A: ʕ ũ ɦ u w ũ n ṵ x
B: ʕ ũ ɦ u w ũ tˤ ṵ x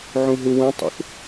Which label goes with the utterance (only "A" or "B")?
B